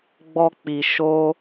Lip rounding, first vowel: rounded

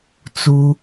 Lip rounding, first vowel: rounded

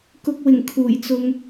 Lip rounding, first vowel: rounded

